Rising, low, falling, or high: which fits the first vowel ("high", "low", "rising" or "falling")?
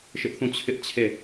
high